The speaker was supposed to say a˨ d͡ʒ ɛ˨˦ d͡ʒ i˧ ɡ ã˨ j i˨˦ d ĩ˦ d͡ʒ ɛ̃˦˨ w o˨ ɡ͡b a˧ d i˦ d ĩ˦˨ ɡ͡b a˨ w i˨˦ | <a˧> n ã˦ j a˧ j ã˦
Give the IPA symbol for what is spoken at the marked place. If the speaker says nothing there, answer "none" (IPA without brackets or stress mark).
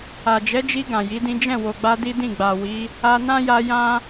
a˧